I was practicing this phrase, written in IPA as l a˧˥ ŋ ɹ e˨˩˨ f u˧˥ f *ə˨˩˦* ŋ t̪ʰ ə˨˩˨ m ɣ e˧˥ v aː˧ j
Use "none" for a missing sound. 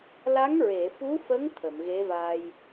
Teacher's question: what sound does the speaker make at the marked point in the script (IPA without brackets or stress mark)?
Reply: ə˧˥